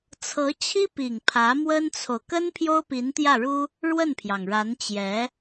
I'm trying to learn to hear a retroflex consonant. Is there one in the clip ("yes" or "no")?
yes